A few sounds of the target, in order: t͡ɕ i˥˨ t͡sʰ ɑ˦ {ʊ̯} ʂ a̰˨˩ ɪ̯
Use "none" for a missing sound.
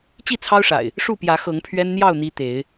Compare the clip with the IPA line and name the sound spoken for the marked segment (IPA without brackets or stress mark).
ʊ̯